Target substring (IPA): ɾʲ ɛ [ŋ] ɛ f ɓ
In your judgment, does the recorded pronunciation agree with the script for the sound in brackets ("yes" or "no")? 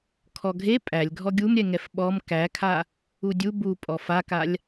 yes